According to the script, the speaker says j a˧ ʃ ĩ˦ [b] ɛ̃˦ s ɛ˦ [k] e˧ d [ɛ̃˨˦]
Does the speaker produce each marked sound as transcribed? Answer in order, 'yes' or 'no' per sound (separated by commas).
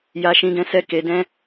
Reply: no, yes, no